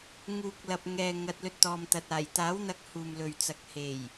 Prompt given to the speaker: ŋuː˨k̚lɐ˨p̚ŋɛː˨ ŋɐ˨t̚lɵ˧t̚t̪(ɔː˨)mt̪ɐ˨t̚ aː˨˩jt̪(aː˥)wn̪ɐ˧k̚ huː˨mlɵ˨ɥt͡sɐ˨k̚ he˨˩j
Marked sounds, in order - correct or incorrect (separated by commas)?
correct, incorrect